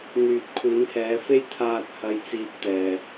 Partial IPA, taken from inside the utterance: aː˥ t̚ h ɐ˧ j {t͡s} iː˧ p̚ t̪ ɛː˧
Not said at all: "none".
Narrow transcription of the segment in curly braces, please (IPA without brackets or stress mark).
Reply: t͡s